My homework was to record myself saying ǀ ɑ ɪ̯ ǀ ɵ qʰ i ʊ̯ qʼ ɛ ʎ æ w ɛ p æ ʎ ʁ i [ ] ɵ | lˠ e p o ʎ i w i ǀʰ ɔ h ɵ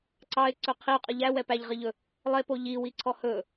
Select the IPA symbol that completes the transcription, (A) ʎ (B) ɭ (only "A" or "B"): A